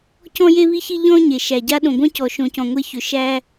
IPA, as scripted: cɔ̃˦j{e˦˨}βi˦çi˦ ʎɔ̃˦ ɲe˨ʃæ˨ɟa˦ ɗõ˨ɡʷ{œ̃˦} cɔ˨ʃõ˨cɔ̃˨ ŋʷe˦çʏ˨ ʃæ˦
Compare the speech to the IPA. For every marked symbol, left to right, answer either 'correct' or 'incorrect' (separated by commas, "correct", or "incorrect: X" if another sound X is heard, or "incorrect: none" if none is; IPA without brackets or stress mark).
incorrect: e˦, correct